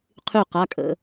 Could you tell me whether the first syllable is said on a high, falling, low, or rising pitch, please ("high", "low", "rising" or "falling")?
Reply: falling